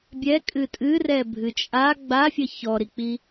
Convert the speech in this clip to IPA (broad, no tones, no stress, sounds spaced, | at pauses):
bʲ ɛ kʼ ɨ tʼ ɨ r ɛ bʱ ɨ t͡ʃʼ a ɡ͡b a fʲ ə ç ɔ ɾ i k͡p i